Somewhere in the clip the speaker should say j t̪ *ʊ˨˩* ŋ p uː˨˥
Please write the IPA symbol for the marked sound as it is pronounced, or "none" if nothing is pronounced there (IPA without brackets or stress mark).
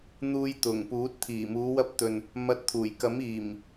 ʊ˨˩